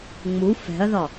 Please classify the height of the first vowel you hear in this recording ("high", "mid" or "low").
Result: high